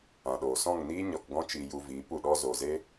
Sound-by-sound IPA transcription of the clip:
ã˨ ɗ oː˨ s ɔ̃˦˨ ŋ n iː˦ ɲ ɔ˧ k ɡ ɔ̃˦ t͡ʃ i˧ j u˧ v iː˨˦ p u˨ ɗ ɔ˦ z o˨ z e˦

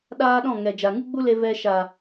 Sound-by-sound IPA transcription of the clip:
ɗ aː˦ ɗ ɔ̃˦˨ ŋ ɛ˨ d͡ʒ a˨ ŋ ɨ˦ ɡ͡b u˦ l e˧ v ɛ˧ ʃ a˨

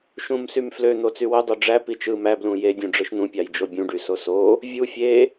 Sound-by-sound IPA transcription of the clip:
ʃ ũ m s y m f l ø n̪ o t͡s y w ø dˤ o ɖ͡ʐ æ p i t͡ʃ ɯ m æ b l ũ j e dʲ ũ ɖ͡ʐ ɯ ʃ n̪ ũ pʲ ɑ j d͡ʒ o bʲ ũ ɖ y s o s o | vʲ u fʲ e

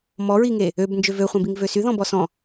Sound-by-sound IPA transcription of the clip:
m ɔ ɹ i ŋ e | ø b n d͡ʒ ø v ø χʷ œ̃ b i ŋ v ø s y ð ɔ̃ b ɔ s ɔ̃

